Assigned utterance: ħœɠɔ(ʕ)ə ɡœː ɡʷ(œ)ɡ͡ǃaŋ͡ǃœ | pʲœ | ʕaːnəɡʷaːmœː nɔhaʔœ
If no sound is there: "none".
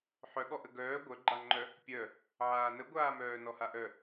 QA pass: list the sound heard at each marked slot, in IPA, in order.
ʔ, œ

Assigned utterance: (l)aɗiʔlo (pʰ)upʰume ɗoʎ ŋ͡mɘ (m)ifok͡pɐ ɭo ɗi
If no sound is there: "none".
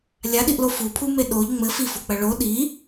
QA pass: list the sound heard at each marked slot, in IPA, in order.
lʲ, f, f

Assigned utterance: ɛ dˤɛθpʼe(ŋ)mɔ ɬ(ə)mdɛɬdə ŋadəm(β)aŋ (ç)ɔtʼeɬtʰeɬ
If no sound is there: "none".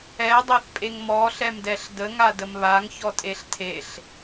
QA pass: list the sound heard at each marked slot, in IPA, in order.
ŋ, ɛ, β, ç

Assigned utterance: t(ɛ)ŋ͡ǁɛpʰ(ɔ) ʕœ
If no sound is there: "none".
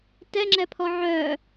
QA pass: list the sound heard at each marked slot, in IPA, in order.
ɛ, ɔ

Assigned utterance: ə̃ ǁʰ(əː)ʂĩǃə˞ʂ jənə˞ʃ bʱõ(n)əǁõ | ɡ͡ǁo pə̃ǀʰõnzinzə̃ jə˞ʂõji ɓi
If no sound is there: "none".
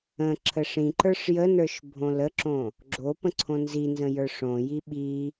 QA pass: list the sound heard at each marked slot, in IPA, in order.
ə, l

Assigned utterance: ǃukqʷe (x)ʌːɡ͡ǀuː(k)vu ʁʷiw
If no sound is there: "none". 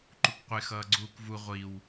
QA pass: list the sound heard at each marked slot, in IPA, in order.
x, k

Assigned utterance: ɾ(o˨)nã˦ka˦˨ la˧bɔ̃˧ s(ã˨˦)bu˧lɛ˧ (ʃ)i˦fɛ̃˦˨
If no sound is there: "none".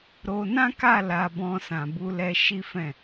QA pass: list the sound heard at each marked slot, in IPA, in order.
o˧, ã˨, ʃ

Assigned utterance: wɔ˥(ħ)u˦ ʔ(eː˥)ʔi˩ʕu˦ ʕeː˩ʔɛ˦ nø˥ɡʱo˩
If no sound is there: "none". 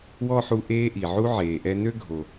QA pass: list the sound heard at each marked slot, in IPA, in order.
ħ, eː˦

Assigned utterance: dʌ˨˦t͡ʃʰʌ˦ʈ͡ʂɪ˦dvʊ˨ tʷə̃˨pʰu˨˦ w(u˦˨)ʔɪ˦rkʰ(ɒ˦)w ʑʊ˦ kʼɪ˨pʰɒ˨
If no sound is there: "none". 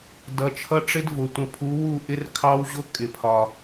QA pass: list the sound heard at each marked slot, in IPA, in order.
u˦˨, ɑ˦

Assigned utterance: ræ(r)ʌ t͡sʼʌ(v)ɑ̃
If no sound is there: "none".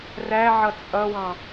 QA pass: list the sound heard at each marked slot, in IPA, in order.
ʕ, w

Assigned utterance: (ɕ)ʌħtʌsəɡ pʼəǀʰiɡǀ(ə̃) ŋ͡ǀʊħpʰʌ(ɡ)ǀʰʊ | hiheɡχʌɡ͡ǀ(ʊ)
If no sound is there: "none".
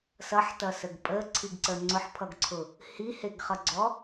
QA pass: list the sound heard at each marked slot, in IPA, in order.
s, ə, ɡ, ɔ

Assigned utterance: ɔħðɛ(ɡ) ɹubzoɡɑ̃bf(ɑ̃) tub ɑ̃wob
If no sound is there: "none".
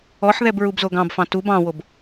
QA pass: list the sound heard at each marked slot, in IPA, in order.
b, ɑ̃

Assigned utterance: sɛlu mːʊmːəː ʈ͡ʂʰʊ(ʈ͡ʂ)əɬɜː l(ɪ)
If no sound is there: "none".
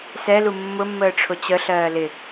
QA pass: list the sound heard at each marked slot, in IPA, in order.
t͡ɕ, ɪ

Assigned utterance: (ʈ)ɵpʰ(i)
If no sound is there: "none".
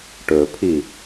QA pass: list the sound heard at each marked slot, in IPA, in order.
ʈ, i

